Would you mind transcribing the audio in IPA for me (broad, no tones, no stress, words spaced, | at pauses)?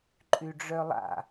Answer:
ǃʼyɖ͡ʐœlˠa̰